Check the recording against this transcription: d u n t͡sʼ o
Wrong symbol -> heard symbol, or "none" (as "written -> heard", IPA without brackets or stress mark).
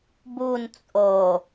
d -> b